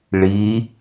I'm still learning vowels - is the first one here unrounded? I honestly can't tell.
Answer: yes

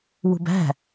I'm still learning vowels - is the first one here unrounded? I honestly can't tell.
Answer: no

